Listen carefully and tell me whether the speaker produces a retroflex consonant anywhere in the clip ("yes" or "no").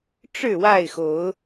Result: yes